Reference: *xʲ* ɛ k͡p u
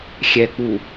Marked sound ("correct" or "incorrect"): correct